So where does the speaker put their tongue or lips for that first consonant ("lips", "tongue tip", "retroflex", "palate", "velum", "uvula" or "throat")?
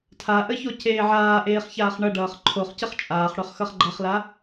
tongue tip